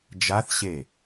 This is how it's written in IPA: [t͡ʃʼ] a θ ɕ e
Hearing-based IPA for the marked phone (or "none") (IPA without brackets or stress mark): d͡ʒ